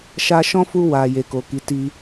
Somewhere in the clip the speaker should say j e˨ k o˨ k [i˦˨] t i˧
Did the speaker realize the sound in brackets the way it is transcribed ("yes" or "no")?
no